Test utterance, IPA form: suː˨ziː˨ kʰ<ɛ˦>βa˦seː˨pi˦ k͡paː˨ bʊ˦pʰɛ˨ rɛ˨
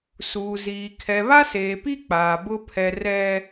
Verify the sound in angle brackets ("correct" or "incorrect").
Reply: incorrect